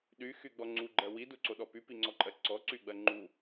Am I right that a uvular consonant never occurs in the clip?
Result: yes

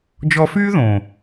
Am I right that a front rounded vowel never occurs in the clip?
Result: no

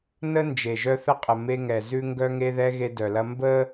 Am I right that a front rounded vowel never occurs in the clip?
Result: no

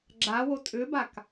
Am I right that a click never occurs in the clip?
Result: no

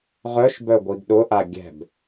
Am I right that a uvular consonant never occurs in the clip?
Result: no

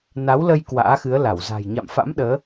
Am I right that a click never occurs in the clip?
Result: yes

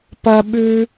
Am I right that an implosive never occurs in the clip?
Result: no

